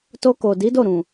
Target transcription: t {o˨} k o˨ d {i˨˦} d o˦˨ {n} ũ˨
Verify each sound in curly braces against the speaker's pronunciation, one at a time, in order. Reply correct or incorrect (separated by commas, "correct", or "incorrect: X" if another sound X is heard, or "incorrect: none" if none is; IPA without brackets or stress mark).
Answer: incorrect: o˧, correct, incorrect: ɾ